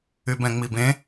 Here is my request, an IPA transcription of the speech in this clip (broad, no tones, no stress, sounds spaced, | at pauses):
y b ɛ̃ ŋ͡m i b ẽ